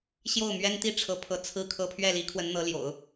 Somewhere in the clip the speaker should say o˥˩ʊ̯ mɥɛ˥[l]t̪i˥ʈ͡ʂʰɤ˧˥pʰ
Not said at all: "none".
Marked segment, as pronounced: n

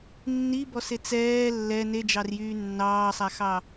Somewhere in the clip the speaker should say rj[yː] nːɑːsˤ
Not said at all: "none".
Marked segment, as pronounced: yː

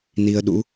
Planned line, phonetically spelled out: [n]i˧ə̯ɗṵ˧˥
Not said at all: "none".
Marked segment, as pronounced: n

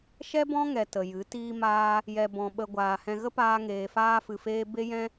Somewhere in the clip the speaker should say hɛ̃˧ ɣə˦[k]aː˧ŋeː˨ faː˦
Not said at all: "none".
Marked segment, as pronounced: p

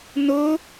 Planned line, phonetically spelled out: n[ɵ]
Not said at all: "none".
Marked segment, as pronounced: ɵ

